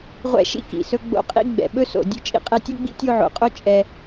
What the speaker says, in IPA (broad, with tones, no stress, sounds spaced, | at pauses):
ʁʷ ɛ̰˦ ʃ ḭ˥ k ḭ˩ s ɵ˦ ɡ͡b o̰˦ qʼ ḭ˥ ɡ͡b ɛ̰˨ ɓ ɵ˦ s o̰˨ dʲ ɵ˦ t͡ʃʼ ḭ˦ qʼ ɛ˦ tʲ o˥ ɡ͡b ḭ˥ tʲ o˦ ʕ o̰˨ qʼ o˥ t͡ʃʼ ɛ˦